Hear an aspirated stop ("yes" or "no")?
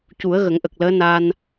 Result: no